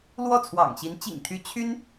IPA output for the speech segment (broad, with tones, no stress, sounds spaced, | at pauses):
l w ɔ˥˩ t͡sʰ w ɑ̰˨˩ ŋ ɕ i˧˥ n t͡ɕ ḭ˨˩ ŋ t̪ʰ y˧˥ t͡ɕʰ y˥ n